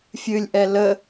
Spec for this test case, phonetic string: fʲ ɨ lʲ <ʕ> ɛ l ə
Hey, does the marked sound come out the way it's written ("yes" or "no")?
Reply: no